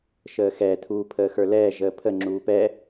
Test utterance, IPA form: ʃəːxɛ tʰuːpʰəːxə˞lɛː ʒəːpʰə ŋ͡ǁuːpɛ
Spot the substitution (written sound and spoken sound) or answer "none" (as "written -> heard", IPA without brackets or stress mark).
none